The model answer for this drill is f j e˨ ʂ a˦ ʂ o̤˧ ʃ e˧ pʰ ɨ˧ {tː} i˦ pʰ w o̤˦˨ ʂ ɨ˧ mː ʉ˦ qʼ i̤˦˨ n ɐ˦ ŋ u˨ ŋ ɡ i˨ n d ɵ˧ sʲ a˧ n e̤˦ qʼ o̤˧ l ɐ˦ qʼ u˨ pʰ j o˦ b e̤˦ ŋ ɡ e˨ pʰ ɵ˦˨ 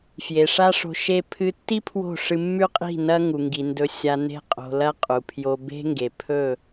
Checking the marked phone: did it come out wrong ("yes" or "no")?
no